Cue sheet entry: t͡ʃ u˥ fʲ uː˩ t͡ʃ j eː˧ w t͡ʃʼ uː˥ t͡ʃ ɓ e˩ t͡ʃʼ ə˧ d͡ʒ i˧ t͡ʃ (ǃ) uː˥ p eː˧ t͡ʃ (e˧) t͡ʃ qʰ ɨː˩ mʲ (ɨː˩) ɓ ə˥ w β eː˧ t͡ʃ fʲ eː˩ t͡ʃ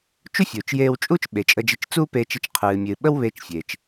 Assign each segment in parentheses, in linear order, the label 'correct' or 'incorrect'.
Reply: incorrect, correct, correct

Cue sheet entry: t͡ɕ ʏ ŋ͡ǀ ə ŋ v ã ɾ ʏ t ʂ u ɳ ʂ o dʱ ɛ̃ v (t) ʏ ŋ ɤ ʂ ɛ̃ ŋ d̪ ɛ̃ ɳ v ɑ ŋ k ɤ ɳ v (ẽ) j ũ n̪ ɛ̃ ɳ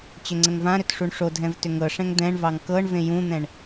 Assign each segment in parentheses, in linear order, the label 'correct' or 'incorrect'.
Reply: correct, correct

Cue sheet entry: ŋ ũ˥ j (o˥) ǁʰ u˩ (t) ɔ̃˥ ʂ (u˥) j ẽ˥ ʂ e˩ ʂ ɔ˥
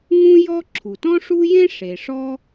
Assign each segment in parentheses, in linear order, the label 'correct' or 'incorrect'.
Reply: incorrect, correct, correct

